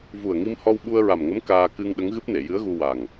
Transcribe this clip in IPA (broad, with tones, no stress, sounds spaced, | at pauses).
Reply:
v u˨˩ ə̯ ŋ i˧ m h ɔ˧ w ɓ u˧ ə̯ ɹ a˨˩ m ŋ ə˧˥ m k aː˧ k ɨ˧ ŋ ɗ ə˧˥ ŋ ɣ ɨ˦˥ p̚ n e˨˩˨ j ɨ˧˥ ə̯ ɣ u˧ w a˨˩ ŋ